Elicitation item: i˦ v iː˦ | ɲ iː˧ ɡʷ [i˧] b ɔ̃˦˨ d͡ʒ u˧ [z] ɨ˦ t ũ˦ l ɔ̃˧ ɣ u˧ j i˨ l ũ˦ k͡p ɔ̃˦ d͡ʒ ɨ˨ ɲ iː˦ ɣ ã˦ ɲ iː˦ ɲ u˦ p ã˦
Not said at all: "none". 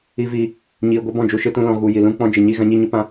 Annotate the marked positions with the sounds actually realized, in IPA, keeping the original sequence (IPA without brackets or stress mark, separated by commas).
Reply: i˦, ʃ